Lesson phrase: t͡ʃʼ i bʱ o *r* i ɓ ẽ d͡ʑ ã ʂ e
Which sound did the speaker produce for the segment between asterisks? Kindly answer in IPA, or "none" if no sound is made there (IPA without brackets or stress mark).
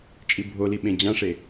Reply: l